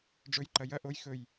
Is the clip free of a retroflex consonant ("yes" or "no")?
no